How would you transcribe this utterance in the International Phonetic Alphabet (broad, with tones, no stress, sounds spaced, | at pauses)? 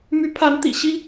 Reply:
m y˧˥ pʰ a˧˥ n t̪ ḭ˨˩ ɕ i˥